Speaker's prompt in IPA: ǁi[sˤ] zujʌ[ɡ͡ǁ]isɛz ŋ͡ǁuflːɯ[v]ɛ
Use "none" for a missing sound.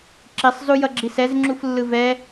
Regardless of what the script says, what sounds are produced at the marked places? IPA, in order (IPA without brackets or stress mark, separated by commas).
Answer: sˤ, ɡ͡ǁ, v